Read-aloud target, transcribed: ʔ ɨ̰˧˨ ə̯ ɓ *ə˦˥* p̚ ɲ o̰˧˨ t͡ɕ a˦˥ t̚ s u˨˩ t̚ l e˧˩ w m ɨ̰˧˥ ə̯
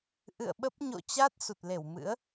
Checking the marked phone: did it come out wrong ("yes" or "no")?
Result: no